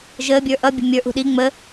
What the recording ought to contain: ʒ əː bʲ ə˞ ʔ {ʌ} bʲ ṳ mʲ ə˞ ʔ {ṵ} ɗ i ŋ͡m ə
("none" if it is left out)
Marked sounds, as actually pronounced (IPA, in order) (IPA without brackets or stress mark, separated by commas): ʌ, ṳ